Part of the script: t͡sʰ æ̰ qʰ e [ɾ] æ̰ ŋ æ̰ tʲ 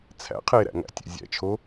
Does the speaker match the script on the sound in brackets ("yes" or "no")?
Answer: yes